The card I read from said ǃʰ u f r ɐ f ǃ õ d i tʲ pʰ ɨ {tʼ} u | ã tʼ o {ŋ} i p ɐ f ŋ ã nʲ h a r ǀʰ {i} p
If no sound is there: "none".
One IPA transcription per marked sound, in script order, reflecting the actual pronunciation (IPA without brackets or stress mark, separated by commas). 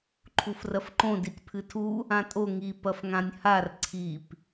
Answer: tʰ, ŋ, i